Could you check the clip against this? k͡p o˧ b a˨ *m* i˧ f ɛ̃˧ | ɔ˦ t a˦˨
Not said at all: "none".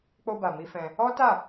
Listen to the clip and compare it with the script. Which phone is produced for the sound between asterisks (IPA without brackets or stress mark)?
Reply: m